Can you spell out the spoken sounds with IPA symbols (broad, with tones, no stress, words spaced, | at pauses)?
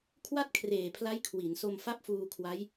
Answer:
kʰwa˥˩t̚kʰreː˨˩pʰla˦˥j kʰwi˩˦nso˧m fa˥˩p̚fuː˧kʰwa˦˥j